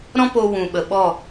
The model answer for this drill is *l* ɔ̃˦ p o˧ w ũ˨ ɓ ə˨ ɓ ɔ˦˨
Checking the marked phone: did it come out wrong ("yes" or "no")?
yes